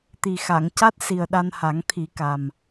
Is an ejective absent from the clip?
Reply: yes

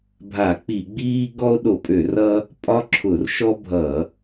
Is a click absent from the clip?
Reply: no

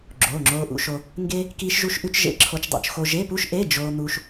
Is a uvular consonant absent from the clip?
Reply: yes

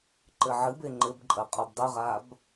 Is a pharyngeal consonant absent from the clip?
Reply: no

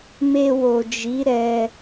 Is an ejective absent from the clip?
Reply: yes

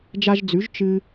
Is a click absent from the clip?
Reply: yes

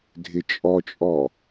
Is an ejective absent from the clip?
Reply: no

